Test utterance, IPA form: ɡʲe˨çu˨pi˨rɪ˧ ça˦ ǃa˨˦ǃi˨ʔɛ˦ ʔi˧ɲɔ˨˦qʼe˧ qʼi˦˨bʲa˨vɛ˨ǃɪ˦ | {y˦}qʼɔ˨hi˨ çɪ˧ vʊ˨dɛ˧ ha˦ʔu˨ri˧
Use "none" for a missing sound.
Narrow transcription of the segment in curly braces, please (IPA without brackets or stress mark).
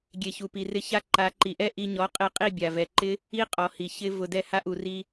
i˦